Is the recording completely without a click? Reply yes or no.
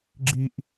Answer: no